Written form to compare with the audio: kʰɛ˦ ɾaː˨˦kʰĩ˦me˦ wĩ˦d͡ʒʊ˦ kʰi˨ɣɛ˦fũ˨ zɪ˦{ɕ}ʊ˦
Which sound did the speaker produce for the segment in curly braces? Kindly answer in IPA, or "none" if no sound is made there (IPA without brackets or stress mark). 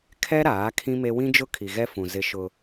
ʃ